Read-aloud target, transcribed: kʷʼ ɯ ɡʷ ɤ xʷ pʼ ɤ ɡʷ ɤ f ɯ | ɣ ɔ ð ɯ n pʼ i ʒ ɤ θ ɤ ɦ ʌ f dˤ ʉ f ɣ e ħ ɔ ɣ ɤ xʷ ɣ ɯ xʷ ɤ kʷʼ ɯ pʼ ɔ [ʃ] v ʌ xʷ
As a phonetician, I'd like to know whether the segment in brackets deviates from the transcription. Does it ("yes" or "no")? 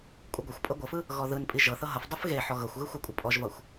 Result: yes